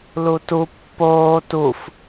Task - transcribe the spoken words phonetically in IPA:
l u t u pː oː t u f

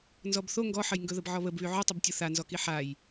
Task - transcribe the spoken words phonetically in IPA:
n z ɔ b θ o ŋ ɡ ɔ ħ ə j ŋ ɡ ɵ ð ə b ʕ ɔ β ə b β y ʕ ɵ tˤ ʊ b tʲ ʊ θ a n z ɔ k i ħ a j

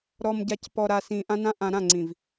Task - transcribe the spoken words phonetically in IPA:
ɾ ɔ˨ m ɟ a˨ c p ɔ˨ ɾ a˨ s ĩ˨ ʔ ã˦ n ã˦ ʔ ã˨ ɾ ã˦˨ ŋ͡ǀ ĩ˨ v

